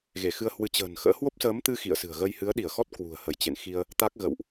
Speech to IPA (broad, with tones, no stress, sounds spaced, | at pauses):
ɣ e˧˩ x ɨ˧ ə̯ h w ɨ˨˦ t͡ɕ ə̤ː˨˩ n x ə̰ː˧˥ h w o˦˥ p̚ s əː˨˦ m t̪ ɨ˧ x ḭ˧˨ ə̯ s ɨ̤˨˩ ə̯ ɣ ə˧ j h ɨ˨˦ ə̯ ɗ i˧˩ ə̯ x ɔ˦˥ t̚ k w ṳ˨˩ ə̯ h ə˧˩ j t͡ɕ ḛ˧˨ n x i˧ ə̯ | t̪ a˦˥ k̚ ɣ ə̰˧˨ w ʔ